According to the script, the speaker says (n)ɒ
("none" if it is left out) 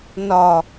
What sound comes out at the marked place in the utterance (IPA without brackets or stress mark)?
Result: n